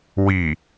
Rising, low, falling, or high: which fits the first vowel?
low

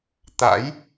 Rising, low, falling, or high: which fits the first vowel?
rising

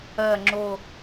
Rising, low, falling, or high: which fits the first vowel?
low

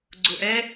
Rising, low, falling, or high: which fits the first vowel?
low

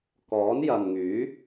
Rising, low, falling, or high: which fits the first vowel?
rising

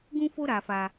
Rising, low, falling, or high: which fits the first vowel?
high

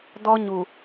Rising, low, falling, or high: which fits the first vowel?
high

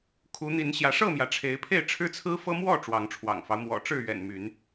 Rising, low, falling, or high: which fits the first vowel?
rising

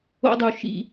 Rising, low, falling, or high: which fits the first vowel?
high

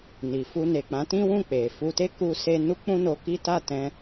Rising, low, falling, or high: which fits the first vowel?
low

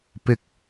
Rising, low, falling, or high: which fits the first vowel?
low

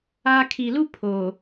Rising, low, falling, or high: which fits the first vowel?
high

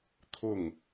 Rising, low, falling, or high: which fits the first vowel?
falling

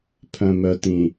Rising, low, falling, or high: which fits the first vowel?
low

